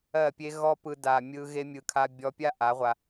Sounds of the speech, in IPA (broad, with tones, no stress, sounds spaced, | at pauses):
ɜ˦˨ pʲ e˦ ɣ ɔ˦ p ɯ˧ d a˨ mʲ ɯ˧ ɣ e˦ mʲ ɯ˧ kʰ a˧ bʲ ɔ˧ pʲ a˦ ʔ a˨˦ ʁʷ a˧